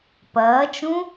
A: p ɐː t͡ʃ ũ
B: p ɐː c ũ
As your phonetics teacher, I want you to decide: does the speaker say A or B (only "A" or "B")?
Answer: A